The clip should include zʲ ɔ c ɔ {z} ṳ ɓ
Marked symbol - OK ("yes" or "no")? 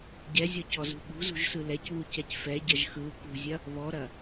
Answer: yes